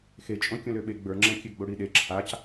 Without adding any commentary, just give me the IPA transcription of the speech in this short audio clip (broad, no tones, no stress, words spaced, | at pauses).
xet͡ʃʼõ kʲõløɓe ɡ͡bə˞ŋ͡ǁɛ̃kʲø ɡ͡boɽiɗe ǁʰac